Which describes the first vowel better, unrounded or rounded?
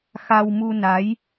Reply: unrounded